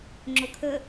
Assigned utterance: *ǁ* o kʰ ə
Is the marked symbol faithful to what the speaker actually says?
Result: no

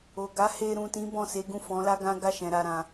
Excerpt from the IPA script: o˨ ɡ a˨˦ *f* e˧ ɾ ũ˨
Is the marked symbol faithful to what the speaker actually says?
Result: no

